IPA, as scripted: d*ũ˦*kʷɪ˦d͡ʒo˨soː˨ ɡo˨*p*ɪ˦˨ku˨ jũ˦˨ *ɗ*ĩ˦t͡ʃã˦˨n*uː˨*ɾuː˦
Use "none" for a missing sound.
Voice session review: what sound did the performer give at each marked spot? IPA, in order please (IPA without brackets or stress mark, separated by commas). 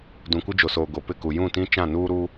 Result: ũ˨, p, t, uː˦